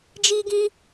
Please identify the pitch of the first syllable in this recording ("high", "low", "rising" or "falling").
high